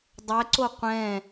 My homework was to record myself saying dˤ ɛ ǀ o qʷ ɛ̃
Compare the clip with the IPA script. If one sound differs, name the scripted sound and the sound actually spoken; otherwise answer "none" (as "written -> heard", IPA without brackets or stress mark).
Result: none